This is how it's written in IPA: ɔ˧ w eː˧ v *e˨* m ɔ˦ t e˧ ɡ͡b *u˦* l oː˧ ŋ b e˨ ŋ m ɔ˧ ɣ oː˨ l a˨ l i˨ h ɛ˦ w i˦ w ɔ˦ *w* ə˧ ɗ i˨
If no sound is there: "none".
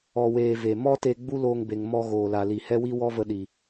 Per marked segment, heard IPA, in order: e˨, u˦, v

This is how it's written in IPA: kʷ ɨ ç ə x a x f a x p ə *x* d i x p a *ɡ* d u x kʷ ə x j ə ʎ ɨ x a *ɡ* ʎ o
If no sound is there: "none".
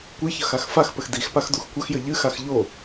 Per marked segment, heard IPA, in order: x, x, x

